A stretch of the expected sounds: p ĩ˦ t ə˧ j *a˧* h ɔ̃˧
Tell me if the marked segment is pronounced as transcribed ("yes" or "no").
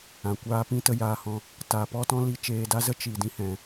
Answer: no